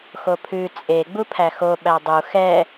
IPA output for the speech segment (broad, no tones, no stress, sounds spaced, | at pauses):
x o pʰ ʉ t͡sʼ e ɡ͡b u pʰ æ x o ɓ æ dˤ u x ɛ